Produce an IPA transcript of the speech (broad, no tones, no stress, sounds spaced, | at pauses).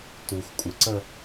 t u x kʷʼ ɪ ǀ ə